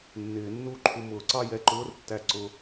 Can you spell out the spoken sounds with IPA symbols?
nː ɪː˨˩˦ nː u˥˩ ǃʰ u˧ m ʊː˨˩˦ ǀ ɑ˥˧ j ɛ˧˥˧ ǃ ʊː˧˥˧ r tː æ˧ ǀ ʊ˧

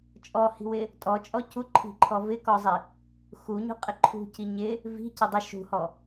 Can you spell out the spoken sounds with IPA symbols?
t͡ʃʼ ɔ h i̤ w ɪ | tʼ ɔ t͡ʃʼ ɔ c u ǃʰ i̤ ǃʰ ɔ v ɪ k ɔ zˤ i | x u ɲ ṳ qʼ ɪ ǃʰ ṳ c i ɲ ɪ | v i̤ c ɪ dˤ ɪ ʃ ṳ h ɔ

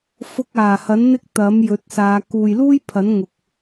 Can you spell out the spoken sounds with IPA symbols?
f ʊ˧ k̚ aː˨˩ h ɐ˨˥ n n̪ ɪ˥ k̚ t̪ ɐ˨˥ m j ɵ˨˥ t̚ s aː˨˧ k uː˨ j l uː˥ j pʰ ɐ˨˥ n ŋ ʊ˨ k̚

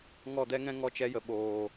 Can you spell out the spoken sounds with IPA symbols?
ŋ ɔ˦˨ d ɛ˦ ŋ ɛ̃˦ ŋ ɔ˦ t͡ʃ ɛ˦ j ə˨ ɓ oː˨

